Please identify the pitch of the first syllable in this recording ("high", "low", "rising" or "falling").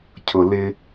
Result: low